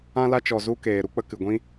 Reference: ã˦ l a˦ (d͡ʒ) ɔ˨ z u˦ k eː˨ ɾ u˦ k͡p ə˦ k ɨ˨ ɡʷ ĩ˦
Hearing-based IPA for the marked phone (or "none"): t͡ʃ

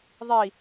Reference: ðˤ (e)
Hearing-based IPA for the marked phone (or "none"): i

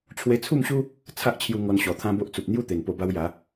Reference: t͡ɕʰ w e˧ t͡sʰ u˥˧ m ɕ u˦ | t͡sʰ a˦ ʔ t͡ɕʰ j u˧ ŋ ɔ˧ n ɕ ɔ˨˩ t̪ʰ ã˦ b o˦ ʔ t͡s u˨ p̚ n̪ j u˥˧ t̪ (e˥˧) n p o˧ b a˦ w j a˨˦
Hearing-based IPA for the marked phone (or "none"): e˨˩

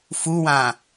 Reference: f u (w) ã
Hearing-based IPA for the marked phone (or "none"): w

